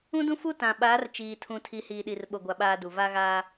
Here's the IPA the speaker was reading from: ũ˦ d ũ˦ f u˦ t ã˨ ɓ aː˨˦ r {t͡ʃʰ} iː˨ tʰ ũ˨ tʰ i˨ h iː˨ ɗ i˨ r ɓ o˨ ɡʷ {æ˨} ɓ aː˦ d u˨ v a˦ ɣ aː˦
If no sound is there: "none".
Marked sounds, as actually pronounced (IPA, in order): t͡ʃ, a˨

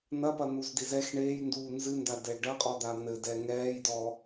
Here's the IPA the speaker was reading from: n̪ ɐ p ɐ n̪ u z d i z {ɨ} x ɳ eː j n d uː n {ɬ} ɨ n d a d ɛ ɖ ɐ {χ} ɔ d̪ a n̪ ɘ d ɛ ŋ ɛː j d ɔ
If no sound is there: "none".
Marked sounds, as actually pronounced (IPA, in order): ɛ, z, qʼ

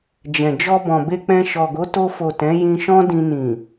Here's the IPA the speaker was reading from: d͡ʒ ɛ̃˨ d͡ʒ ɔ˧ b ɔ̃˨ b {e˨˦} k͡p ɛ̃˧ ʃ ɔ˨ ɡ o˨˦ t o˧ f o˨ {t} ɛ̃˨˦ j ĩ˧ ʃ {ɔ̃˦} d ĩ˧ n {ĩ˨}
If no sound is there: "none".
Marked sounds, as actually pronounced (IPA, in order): e˧, t, ɔ̃˦, ĩ˨

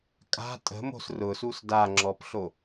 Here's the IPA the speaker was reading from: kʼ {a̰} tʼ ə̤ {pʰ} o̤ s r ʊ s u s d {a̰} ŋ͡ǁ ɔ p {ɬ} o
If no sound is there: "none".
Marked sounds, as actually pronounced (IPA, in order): a̤, m, a, ɬ

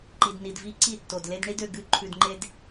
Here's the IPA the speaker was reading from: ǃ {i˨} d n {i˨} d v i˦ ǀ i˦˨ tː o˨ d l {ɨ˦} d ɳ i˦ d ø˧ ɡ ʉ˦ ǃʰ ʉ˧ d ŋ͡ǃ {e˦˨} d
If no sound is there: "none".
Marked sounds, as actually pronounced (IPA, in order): i˨, i˨, e˦, e˦

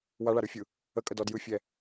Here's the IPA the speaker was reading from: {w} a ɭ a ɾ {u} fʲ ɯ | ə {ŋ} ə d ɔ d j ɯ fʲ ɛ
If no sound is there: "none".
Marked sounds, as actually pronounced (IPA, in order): w, ɯ, kʼ

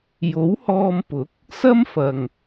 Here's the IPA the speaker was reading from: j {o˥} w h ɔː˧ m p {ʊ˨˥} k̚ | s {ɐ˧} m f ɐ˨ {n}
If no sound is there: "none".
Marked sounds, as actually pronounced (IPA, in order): o˨˥, ʊ˨˥, ɐ˥, ŋ

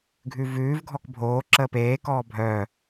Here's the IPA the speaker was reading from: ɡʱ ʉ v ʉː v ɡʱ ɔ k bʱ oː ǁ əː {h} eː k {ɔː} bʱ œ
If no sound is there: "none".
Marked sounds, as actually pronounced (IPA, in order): p, ɔː

